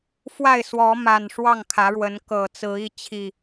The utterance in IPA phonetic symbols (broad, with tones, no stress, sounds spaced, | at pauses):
f w a˥˨ ɪ̯ s w ɔ˨˦ m a˨˩ n ʂ w ɑ˥˨ ŋ kʰ ä˨˦ ɻ w ə˨˦ n k ɤ˨˩ t͡s ɹ̩˨˦ i˥˨ t͡ɕʰ i˥˨